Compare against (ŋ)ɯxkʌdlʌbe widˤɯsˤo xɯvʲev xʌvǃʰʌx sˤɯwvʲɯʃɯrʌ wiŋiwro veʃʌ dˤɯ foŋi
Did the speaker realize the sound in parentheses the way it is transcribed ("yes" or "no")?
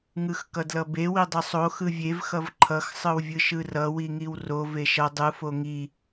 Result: yes